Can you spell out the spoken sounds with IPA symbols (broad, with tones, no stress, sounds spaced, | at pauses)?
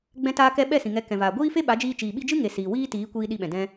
ɡ͡b ɛ̃˧ t aː˧ k ɛ˧ ɓ ɛ˦˨ s ĩ˨ ŋ ɛ˨˦ k ɛ̃˨ v aː˨ ɡʷ iː˦ f e˦ ɓ a˨˦ d͡ʒ iː˧ t͡ʃ iː˨ ɓ i˧ d͡ʒ ɨ˦ ŋ e˨ s iː˨ w iː˦ t iː˨˦ kʷ iː˧ ɗ i˧ ɓ ɛ̃˨ d ɛ̃˧